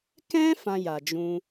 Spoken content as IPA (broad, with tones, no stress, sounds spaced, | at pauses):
k ɛ̃˦ f ã˧ j a˨ d͡ʒ ũ˧